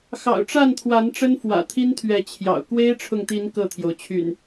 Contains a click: no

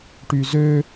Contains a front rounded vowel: yes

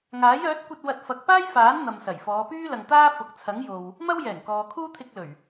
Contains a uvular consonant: no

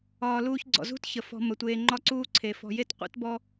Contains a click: yes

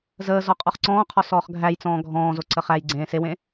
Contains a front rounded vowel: no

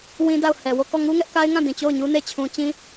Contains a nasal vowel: yes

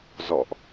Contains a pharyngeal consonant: no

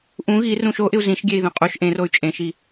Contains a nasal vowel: yes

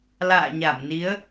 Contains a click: no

